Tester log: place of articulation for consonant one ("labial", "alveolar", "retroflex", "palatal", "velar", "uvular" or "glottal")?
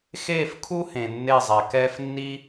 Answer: velar